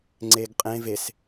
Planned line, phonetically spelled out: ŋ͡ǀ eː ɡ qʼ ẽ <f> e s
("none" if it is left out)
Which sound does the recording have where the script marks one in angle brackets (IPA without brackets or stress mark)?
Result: v